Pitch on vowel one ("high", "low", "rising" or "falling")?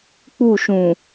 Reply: falling